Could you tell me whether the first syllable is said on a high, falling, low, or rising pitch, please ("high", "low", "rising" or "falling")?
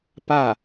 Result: falling